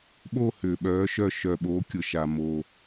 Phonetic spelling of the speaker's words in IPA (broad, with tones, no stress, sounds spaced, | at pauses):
ɓ o˥˧ h ʏː˧ ɓ œː˧˥ ʃ œ˥˧ ʃ œ˧ ɓ o˧˥ kʲ ʊ˧ ʃ a˧ m o˧